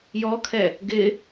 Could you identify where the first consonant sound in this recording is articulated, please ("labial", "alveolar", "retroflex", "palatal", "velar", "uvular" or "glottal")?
palatal